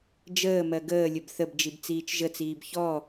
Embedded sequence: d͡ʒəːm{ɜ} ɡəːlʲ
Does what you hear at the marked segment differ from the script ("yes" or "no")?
no